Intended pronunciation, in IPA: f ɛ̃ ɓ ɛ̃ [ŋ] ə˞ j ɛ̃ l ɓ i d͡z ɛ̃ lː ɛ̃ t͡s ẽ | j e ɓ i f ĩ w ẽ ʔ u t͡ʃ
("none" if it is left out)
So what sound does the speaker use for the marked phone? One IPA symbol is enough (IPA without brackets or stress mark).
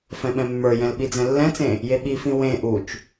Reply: mː